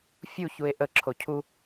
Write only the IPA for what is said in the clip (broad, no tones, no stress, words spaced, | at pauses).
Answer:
fʲuçue̯ ʔə ǁʰocʰu